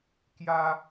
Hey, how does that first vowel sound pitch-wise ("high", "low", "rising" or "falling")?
high